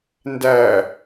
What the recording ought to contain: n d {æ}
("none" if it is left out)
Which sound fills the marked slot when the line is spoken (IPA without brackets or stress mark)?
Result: æ